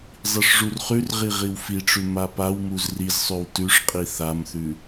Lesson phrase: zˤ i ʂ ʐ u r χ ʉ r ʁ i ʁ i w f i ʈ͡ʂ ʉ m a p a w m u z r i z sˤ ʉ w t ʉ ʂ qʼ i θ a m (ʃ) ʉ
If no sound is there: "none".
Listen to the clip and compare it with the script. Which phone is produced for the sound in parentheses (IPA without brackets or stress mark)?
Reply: θ